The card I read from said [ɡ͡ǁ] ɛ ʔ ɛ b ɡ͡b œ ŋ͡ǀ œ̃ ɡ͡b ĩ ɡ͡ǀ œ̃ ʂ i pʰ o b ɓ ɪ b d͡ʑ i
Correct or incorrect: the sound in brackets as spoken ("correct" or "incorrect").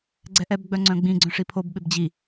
incorrect